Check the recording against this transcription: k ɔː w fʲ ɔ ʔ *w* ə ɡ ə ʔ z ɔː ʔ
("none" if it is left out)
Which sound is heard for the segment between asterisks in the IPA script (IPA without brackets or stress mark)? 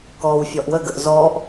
w